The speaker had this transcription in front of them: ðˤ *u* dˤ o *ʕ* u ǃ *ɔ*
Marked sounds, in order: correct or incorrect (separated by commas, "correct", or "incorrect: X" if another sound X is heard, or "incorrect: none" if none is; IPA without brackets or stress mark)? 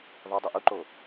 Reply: incorrect: o, incorrect: ʔ, incorrect: o